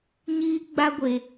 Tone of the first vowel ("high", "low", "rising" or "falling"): high